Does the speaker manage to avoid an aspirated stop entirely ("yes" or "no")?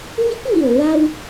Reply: yes